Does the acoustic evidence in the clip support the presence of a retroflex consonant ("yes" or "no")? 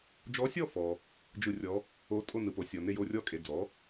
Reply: no